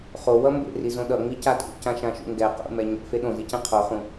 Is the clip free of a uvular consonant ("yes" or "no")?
no